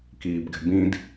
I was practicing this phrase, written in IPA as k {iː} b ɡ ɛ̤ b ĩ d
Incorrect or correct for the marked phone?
correct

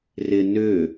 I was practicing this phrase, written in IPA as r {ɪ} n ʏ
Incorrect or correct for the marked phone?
correct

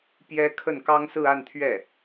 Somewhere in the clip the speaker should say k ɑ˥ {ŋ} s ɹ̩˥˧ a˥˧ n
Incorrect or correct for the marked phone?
correct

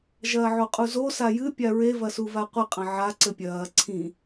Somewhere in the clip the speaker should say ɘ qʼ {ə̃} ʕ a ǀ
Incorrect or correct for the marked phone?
incorrect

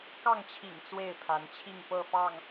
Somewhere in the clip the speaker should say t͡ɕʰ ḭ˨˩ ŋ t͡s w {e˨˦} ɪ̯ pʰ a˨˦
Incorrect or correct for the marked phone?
incorrect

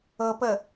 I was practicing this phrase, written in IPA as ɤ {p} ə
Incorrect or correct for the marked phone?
correct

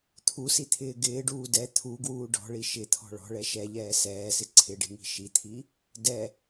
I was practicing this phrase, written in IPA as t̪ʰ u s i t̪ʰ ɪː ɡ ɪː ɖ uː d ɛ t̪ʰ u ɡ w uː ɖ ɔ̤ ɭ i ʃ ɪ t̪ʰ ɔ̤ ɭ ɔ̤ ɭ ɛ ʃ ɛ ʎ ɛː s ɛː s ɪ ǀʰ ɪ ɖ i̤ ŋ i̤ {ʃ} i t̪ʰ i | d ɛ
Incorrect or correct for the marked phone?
correct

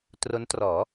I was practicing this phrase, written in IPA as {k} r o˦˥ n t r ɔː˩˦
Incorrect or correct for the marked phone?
incorrect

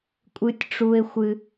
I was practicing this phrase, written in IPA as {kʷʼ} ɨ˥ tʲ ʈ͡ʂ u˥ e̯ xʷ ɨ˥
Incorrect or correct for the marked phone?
correct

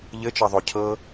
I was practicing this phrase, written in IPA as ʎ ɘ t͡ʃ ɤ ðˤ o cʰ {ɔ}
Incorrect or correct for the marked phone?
incorrect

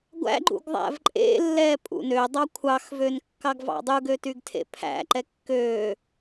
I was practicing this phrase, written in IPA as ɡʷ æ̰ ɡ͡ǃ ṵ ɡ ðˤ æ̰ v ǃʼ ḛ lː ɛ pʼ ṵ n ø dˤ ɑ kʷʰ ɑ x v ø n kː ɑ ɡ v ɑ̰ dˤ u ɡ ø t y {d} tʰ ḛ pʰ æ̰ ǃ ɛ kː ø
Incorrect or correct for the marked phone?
incorrect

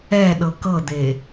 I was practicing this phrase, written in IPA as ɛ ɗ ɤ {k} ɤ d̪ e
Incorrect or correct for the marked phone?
correct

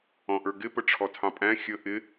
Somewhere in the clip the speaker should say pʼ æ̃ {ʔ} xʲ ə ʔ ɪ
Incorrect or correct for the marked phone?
incorrect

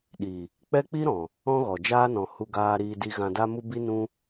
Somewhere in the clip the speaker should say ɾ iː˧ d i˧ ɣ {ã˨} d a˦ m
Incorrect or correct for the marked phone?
incorrect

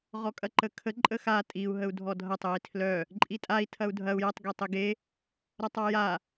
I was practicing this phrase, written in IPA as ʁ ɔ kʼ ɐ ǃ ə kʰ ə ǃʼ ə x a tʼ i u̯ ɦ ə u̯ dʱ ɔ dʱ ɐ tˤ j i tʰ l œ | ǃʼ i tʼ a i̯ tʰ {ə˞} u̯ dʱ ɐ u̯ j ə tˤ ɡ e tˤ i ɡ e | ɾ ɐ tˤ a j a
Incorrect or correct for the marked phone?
incorrect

